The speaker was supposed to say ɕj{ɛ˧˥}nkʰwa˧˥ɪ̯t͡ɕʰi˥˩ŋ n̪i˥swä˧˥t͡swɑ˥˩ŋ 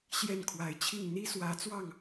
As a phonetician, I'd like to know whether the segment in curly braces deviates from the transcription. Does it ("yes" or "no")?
yes